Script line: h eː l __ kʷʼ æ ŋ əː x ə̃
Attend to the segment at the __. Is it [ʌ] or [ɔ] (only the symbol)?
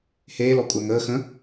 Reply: ɔ